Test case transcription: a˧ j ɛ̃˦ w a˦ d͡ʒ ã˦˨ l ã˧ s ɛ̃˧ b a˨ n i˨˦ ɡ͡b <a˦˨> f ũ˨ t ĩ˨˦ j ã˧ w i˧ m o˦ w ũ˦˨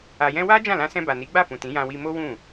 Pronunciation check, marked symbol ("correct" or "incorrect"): correct